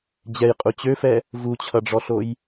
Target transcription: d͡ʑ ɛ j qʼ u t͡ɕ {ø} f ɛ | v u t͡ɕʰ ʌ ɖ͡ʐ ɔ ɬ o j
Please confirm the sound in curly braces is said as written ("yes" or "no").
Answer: yes